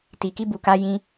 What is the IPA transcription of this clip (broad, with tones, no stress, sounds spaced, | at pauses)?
t i˨ k i˧ b u˨ k a˧ j ĩ˧